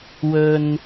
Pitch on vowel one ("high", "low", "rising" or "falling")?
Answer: low